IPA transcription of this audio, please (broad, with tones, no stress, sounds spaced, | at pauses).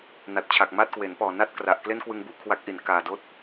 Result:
n a˨˩ t̚ t͡ɕʰ a˨˩ k̚ m aː˥˩ t̚ k w e˩˦ n p ɔː˨˩ n a˥˩ t̚ k r a˨˩ ʔ k l e˥˩ n k w ɯ˧ ŋ b u˦˥ ʔ kʰ w a˦˥ k̚ ʔ i˨˩ n k aː˨˩ d oː˦˥ t̚